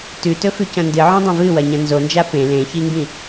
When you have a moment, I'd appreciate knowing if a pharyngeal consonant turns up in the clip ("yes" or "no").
yes